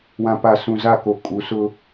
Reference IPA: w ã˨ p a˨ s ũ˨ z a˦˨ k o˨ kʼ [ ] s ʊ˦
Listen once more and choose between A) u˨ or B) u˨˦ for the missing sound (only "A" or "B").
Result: B